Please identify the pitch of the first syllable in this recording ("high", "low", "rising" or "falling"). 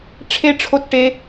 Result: high